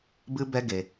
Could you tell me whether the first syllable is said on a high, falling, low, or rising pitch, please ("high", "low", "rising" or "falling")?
high